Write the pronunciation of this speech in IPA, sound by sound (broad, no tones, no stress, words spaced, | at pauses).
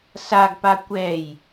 saɡpa kʷɛj